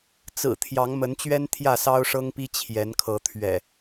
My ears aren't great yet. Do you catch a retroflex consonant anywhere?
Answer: yes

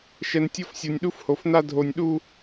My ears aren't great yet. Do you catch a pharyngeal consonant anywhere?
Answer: no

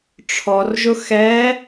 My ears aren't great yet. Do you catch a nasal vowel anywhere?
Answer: no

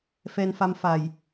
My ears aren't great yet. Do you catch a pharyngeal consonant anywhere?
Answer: no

